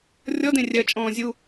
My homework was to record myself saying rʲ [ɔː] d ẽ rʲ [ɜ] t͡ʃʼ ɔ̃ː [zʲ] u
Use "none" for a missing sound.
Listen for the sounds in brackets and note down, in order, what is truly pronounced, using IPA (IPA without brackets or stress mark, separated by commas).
ɔ, ɜ, zʲ